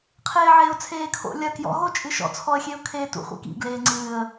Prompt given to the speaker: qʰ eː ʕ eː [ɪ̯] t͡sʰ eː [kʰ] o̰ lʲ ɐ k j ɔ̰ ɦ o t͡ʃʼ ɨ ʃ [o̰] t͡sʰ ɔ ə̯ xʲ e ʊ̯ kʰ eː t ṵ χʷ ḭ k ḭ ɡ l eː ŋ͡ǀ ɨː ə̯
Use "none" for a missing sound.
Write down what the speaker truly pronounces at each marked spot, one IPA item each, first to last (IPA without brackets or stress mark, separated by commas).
ʊ̯, kʰ, ɔ̰